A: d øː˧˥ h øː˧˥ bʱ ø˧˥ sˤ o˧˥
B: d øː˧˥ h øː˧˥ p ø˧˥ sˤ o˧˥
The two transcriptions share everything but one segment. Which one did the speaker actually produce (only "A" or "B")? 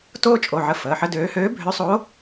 A